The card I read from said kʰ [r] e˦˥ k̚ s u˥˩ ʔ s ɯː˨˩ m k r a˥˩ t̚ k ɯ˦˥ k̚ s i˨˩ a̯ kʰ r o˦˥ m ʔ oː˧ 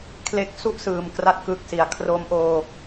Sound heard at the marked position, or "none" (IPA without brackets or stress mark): l